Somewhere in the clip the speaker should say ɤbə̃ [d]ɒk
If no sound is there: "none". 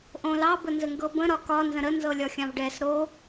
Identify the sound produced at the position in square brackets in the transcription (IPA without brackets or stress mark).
ɾ